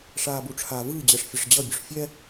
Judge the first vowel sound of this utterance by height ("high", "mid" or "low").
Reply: low